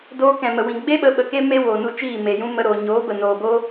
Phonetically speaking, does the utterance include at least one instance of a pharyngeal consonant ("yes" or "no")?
no